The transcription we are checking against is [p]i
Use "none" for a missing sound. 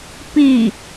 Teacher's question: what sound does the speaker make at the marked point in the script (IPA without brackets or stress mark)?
p